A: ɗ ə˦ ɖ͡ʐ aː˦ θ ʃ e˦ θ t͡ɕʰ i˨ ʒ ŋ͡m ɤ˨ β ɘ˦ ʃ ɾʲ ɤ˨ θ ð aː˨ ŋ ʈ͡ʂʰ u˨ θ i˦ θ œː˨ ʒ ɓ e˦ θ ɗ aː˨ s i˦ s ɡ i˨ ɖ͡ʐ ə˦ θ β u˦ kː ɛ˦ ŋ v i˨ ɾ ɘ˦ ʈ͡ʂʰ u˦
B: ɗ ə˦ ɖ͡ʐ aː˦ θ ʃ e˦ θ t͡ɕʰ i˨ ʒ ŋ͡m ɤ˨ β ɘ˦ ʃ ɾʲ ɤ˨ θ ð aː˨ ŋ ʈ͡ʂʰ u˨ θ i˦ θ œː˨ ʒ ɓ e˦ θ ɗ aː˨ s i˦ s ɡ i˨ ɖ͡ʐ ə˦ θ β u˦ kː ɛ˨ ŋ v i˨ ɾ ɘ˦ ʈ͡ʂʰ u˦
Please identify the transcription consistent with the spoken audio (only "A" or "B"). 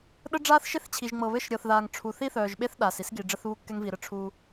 A